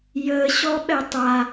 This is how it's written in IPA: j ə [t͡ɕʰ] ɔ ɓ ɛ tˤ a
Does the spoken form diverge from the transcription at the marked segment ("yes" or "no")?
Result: yes